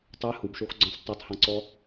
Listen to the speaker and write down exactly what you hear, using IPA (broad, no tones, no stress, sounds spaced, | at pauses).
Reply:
tˤ ɛ h u b ʃ o x ɡ͡ǀ ɔ̃ s tˤ ɛ tˤ h ɔ̃ ǀ ɔ